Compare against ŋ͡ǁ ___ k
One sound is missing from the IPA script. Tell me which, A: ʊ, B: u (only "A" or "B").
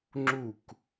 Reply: B